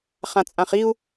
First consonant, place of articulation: uvular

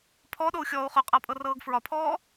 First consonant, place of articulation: labial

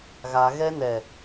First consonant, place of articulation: velar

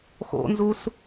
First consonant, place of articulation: velar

